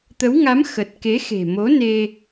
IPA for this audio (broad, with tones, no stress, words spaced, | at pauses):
t̪ə˨˦wŋa˨˦m xə˨˩t̚ ke˨˦xe̤˨˩mo˨˦ne˧